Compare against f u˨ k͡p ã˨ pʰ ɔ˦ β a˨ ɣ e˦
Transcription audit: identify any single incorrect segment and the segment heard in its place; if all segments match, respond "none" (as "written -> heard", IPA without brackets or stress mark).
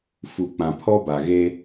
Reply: β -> b